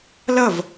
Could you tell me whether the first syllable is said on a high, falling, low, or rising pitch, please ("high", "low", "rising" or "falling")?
falling